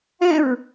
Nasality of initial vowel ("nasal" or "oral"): nasal